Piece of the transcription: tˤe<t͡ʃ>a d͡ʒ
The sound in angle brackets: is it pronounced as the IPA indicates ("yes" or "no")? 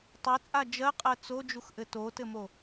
no